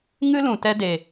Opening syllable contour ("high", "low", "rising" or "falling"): high